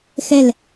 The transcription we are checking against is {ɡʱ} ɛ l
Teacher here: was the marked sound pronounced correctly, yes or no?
no